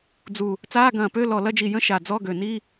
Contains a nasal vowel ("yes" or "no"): yes